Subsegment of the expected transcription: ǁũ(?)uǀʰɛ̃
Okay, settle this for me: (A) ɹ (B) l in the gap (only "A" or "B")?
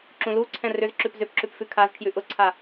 B